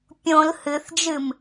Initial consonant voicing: voiceless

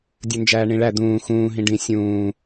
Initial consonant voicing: voiced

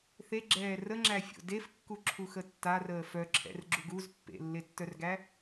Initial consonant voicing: voiceless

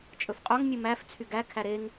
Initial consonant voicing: voiceless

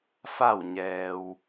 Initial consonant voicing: voiceless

